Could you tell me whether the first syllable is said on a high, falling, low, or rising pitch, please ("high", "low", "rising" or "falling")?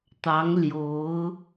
rising